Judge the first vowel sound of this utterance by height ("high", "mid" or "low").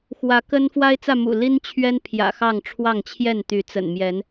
low